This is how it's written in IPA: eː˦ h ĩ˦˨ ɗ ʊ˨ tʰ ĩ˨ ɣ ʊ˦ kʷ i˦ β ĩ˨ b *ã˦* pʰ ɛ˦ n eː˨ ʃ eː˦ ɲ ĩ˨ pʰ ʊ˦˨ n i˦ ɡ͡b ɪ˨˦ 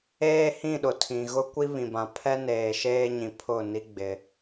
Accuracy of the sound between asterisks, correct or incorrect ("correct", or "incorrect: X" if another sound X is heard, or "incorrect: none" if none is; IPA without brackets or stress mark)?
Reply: incorrect: ã˨